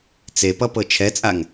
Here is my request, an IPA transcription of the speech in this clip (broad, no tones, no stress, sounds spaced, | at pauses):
t͡s e p ʌ p ɤ t͡ʃʰ ɛ t͡sʼ a ŋ